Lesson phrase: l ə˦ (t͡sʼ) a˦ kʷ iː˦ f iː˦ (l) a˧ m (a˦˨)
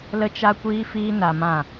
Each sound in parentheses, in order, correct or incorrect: incorrect: t͡ʃ, incorrect: n, incorrect: ã˦˨

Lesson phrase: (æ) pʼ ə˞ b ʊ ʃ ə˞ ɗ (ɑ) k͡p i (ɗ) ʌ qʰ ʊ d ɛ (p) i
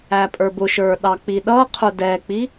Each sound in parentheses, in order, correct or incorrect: correct, correct, correct, incorrect: k͡p

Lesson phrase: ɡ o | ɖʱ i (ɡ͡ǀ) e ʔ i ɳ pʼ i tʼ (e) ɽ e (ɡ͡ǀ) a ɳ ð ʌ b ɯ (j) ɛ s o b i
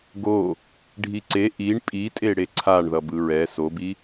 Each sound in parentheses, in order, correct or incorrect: incorrect: ǀ, correct, incorrect: ǀʰ, incorrect: ɹ

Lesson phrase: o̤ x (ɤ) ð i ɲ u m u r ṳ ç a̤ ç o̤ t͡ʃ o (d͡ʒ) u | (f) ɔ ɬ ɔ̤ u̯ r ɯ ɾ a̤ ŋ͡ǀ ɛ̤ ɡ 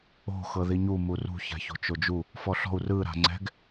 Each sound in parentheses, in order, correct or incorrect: correct, correct, correct

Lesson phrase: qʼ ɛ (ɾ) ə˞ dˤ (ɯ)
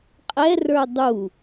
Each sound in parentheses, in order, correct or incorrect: incorrect: r, incorrect: u

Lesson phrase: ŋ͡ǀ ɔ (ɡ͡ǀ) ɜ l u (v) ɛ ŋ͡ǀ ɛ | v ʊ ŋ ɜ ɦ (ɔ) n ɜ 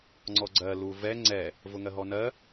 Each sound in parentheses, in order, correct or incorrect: correct, correct, correct

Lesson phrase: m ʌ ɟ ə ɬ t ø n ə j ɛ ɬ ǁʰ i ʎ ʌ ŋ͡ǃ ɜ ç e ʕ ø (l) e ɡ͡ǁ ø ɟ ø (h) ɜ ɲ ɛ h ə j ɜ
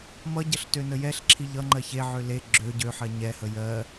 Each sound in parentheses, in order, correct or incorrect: correct, incorrect: ħ

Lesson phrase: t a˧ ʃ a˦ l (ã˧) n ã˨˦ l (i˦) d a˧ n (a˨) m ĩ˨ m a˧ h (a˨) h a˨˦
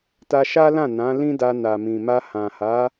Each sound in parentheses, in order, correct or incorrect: incorrect: ã˦˨, incorrect: ĩ˦, correct, incorrect: ã˨

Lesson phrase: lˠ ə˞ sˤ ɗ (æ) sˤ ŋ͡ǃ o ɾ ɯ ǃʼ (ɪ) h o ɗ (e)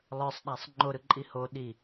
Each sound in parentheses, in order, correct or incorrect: correct, incorrect: i, incorrect: i

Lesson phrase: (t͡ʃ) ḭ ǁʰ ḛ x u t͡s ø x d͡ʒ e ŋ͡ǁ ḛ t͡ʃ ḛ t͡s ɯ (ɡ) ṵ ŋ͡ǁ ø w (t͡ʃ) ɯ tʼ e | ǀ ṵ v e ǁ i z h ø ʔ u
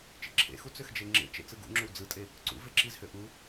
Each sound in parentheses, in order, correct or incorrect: correct, correct, incorrect: d͡z

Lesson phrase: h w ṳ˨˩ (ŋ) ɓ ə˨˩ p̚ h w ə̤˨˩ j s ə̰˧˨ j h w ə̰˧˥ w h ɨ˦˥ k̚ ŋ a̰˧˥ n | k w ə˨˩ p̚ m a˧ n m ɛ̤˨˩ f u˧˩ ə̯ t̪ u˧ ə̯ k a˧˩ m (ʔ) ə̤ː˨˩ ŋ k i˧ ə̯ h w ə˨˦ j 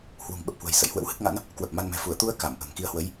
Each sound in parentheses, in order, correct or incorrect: correct, correct

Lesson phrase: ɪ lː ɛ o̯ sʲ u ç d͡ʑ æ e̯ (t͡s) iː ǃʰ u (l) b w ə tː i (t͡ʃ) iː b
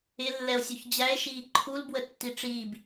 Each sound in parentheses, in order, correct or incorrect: incorrect: ʃ, correct, incorrect: ʈ͡ʂ

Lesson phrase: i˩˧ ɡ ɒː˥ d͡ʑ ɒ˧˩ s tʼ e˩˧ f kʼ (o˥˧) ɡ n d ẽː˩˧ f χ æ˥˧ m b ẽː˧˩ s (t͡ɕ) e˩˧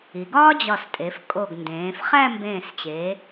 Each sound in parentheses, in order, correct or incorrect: incorrect: o˧˩, correct

